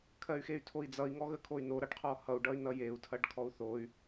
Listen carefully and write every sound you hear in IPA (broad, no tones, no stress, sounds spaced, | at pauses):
kʰ ɜ y̯ x e y̯ tʰ o i̯ d͡z ʌ i̯ ŋ ɔ ɣ ə kʰ o y̯ n o ɾ ʌ ɖ qʰ ɔ h ʌ u̯ ɖ ʌ y̯ n ʌ j e u̯ tʰ ɐ ɖ kʰ ɔ u̯ θ o y̯